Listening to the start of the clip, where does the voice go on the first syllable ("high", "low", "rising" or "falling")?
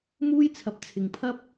high